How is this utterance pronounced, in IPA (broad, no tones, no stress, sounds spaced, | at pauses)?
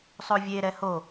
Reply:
sˤ o vʲ e ɾ ɛ h o